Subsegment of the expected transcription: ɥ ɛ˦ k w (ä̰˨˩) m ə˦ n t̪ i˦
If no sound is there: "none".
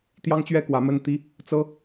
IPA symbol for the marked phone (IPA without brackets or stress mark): ä˨˦